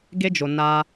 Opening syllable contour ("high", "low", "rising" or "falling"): high